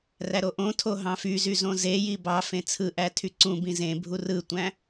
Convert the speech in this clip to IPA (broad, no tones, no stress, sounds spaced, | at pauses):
r æ ɾ o ʔ õ tʰ o ɦ ɑ̃ f y z y z õ z e j i b ɑ f ẽ t͡sʰ ɯ ʔ æ tʰ y ǀ ũ b ĩ z ẽ bʱ u r ɯ tʷ æ̃